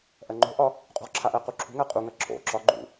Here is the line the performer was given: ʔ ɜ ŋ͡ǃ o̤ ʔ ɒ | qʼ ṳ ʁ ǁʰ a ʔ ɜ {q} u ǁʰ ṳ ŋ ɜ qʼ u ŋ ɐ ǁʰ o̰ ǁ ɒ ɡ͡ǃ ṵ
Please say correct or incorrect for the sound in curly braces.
correct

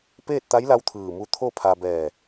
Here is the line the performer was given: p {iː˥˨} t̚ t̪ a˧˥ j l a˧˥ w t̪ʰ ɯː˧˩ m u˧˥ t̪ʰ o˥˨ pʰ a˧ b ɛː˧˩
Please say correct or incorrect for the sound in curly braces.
incorrect: eː˥˨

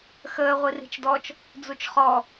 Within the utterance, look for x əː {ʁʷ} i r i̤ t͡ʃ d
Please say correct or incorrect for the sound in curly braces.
correct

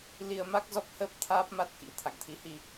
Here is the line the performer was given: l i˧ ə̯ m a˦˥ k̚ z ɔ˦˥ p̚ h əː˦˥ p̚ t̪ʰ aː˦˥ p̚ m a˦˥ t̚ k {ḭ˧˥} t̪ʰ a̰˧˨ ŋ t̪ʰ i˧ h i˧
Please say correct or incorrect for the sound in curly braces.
correct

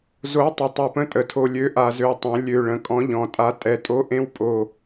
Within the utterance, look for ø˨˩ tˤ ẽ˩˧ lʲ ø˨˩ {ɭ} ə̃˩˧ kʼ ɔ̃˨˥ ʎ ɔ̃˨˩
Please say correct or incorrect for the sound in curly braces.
correct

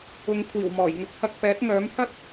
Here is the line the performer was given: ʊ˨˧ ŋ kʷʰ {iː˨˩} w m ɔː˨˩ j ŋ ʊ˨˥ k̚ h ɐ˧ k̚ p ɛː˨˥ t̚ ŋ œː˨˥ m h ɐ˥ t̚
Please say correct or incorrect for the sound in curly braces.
correct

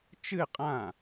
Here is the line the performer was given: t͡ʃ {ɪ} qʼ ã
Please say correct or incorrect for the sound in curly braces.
incorrect: ɨ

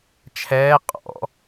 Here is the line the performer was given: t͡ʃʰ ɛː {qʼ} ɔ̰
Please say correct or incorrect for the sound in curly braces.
correct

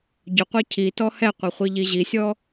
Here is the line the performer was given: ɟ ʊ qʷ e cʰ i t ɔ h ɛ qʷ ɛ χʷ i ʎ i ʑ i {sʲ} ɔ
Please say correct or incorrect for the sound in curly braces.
correct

